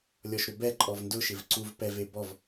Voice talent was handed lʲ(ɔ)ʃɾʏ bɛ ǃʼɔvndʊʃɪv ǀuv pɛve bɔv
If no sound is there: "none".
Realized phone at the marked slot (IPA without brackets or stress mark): ɔ